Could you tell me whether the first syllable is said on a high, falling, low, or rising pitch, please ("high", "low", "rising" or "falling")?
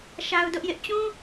high